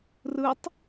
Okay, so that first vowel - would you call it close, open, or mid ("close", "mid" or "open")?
close